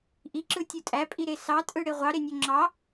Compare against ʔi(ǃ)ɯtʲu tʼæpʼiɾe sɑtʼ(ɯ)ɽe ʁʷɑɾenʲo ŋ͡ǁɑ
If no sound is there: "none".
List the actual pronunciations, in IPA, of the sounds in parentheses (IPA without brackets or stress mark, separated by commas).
ǁ, ɯ